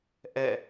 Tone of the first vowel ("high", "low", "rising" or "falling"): falling